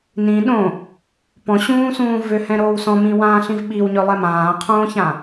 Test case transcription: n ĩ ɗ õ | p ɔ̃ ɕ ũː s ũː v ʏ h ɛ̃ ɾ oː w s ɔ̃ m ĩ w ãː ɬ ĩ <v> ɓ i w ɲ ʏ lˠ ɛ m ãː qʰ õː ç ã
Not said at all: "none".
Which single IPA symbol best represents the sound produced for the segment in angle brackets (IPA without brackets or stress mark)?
v